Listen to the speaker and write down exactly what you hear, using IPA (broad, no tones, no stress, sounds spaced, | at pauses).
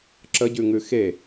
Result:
ǁ ə ɟ ʉ ŋ ʉ x e